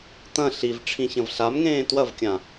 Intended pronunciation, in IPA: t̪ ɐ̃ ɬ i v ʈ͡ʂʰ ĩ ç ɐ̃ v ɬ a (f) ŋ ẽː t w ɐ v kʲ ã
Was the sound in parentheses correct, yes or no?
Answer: no